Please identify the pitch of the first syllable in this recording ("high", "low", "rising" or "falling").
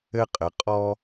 high